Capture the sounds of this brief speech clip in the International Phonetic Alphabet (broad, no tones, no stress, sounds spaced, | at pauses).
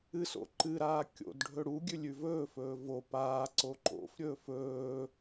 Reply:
ɨ s o̰ ǃ ɨ ɾ aː kʲ o̰ d ɖʱ ɵ ɽ u ɡʲ ʉ lʲ ʉ v ɵː f ɵː v o p aː ǀ o ǃ o̰ f ɾʲ ɵː f ɵː